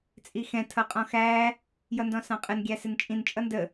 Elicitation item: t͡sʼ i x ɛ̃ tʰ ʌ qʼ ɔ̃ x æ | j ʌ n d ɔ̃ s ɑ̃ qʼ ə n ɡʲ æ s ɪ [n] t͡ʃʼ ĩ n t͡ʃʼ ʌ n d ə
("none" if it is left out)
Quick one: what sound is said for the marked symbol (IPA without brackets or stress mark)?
n